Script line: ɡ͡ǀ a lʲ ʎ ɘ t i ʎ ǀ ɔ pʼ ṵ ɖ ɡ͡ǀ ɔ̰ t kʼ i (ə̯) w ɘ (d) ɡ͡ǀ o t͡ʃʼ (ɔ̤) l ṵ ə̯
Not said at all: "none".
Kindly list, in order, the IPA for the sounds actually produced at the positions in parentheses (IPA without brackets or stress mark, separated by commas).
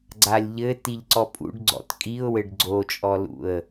ʊ̯, ɖ, ɔ